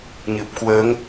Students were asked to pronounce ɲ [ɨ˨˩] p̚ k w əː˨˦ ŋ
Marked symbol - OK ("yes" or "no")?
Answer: yes